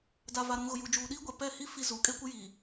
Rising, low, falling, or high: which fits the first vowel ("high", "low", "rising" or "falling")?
low